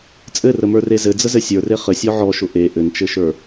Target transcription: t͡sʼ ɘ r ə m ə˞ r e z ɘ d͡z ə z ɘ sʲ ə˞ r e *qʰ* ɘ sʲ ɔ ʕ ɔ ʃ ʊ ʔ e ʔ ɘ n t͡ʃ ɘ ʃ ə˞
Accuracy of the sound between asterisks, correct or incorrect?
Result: incorrect